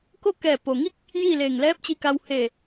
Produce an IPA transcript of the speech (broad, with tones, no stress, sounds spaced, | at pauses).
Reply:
k o˥˨ k ɛː˧˩ p o˩ ŋ i˥˨ k̚ | j iː˥˨ l eː˧˩ ŋ l ɛː˧˥ p̚ t͡ɕ i˧ k a˧ w h eː˧˩